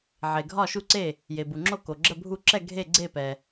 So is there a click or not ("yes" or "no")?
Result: yes